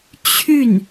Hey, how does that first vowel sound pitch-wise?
falling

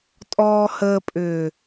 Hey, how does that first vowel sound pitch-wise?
low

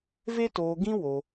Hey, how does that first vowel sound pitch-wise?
high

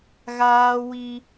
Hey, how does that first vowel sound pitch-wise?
high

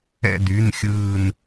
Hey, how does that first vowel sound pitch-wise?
falling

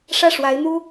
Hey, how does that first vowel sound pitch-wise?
falling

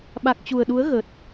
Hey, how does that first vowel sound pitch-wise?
low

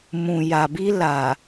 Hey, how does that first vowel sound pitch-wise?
low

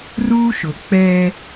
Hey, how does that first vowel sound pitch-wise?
high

